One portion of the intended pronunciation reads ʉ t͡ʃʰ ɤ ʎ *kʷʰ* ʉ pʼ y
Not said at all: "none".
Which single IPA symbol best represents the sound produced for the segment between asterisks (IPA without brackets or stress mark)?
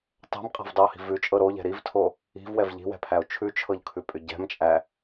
kʰ